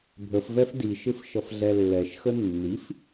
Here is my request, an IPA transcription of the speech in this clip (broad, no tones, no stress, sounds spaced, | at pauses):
bʱ ə f v ɛ f d i ʃ ɪ f ʃ ʌ f ɮ ɛ lː ɛ ʃ x ə nː i f